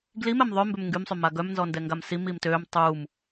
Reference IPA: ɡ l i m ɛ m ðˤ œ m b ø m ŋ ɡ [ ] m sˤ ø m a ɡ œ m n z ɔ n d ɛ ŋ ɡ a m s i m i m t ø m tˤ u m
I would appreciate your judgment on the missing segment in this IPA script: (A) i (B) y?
B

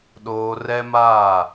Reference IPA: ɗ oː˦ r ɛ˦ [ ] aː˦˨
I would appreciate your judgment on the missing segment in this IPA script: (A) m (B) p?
A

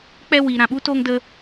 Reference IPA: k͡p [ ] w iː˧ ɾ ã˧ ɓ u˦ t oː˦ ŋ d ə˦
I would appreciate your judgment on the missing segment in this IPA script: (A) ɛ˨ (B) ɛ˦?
B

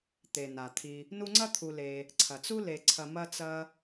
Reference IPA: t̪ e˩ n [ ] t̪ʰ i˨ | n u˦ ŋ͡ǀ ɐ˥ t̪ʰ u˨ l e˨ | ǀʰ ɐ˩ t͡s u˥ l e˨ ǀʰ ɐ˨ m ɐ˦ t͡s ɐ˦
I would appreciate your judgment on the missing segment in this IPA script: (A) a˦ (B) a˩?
B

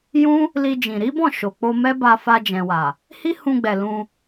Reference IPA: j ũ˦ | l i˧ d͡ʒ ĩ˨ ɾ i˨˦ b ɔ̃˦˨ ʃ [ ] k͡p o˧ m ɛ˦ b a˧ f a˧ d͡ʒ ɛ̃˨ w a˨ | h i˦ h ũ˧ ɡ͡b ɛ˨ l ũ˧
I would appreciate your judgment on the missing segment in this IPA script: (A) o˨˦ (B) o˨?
B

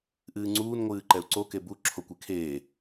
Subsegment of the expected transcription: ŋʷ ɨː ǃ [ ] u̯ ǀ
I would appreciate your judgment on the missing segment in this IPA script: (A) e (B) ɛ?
B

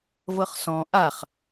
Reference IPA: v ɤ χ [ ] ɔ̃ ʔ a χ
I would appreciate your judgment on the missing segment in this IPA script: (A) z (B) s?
B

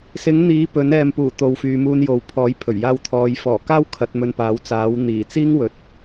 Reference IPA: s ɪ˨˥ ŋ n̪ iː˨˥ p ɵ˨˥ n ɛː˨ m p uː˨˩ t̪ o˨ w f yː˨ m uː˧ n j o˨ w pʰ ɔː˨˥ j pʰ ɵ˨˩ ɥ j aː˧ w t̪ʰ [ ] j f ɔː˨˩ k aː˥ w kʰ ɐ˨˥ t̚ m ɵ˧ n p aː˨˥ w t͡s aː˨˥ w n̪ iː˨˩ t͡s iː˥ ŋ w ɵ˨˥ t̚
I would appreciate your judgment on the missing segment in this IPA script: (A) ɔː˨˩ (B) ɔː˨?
B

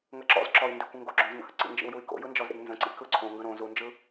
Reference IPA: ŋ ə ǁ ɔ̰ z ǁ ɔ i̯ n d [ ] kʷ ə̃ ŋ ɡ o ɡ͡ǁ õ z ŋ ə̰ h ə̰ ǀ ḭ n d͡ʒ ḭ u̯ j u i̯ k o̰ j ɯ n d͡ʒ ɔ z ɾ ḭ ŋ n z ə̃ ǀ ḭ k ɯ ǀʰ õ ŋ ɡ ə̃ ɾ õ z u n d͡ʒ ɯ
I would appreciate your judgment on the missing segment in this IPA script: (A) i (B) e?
A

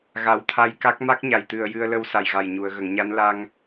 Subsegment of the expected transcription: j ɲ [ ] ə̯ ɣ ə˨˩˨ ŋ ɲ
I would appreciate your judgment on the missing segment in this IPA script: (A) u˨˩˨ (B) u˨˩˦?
A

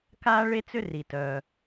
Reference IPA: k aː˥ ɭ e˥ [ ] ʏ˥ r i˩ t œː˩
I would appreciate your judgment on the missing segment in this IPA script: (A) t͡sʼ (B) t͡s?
B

